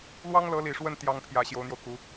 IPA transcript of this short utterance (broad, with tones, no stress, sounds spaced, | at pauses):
l w ɑ˥ ŋ l ɤ˧˥ l i˨˩ ʂ w ə˥˩ n t̪ j ɑ˥ ŋ pʰ j ä˧˥ ɕ j o˧˥ ʊ̯ n̪ j o˧ ʊ̯ k u˧˥